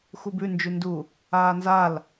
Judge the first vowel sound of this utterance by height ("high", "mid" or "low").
high